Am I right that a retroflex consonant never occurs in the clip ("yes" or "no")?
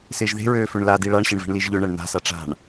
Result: no